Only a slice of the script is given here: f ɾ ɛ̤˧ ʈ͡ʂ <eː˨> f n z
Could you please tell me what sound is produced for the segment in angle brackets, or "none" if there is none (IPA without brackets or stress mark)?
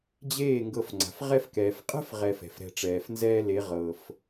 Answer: ɛː˨